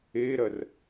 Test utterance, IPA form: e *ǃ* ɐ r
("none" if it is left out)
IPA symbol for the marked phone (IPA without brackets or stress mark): ɾ